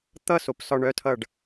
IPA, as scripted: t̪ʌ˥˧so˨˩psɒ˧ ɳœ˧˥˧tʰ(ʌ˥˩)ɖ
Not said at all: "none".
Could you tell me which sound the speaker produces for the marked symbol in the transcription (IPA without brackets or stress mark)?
ʌ˥˧